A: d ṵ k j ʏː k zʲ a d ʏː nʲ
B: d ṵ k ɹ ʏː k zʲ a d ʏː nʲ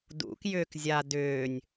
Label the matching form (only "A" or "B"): A